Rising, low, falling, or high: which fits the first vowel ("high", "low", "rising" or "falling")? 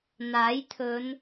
rising